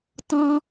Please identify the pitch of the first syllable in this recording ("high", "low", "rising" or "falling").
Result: high